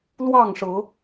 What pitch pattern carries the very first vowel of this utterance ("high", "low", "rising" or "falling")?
falling